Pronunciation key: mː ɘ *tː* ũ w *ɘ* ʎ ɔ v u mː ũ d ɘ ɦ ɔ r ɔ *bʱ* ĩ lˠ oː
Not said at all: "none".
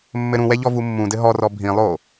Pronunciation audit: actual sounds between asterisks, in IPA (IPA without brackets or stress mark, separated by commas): ɾ, ɛ, bʱ